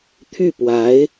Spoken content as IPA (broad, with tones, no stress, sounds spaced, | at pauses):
t̪ʰ y˥˩ p w a˧˥ ɪ̯